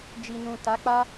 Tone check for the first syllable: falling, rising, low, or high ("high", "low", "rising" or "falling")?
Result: low